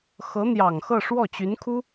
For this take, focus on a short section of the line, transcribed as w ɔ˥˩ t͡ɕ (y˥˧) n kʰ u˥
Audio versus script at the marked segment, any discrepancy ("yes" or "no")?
yes